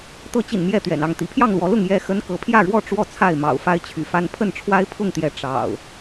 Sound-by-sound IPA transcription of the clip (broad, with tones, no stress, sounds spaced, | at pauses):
t̪ ɤ˨˦ t͡ɕ ḭ˨˩ n m j ɛ˥˨ t̪ ɥ ɛ̰˨˩ n ɑ˥˨ ŋ t̪ ḭ˨˩ pʰ j ɑ˥˨ ŋ l w ɔ˨˦ l ʊ˥˨ ŋ j ɛ˥˨ x ə˦ n k ɤ˨˦ pʰ j ä˥˨ ɻ w ɔ˥˨ ʈ͡ʂ w ɔ˥˨ t͡sʰ a˥˨ ɪ̯ m ɑ̰˨˩ ʊ̯ f a˦ ɪ̯ t͡ɕʰ y̰˨˩ f a˦ n pʰ ə˥˨ n ʈ͡ʂʰ w a˦ ɪ̯ pʰ ʊ˥˨ ŋ t̪ j ɛ˨˦ ʈ͡ʂ ɑ̰˨˩ ʊ̯